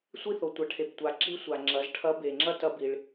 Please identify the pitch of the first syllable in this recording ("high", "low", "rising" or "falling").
high